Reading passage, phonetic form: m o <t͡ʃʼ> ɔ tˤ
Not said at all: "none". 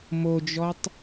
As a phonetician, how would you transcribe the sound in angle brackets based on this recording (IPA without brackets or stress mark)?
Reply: d͡ʒ